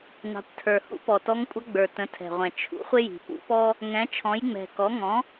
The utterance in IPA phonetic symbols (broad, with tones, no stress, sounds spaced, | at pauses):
n ɑ̤˩˥ kʷ tʰ ə˞˨˩ h ṵ˧˥ p ɔ˨˩ t ɔ˧˥ ŋ kʷʼ ʌ˧˥ ɡ͡b ə˞˨˩ t ə̃˩˥ tʰ ɛ̤˨˩ ʁʷ ɛ̃˨˩ t͡ʃʰ ṵ˩˥ χʷ ɪ˥ j i̤˨˩ p ṵ˧˥ p ɔ˥ | ŋ ɛ̃˩˥ t͡ʃʰ ɔ̃˩˥ j ŋ͡m ɛ̤˨˩ k ɔ˩˥ ŋ ɔ̃˩˥